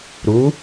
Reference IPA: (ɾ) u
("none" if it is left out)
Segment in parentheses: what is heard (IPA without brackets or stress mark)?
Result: ɾ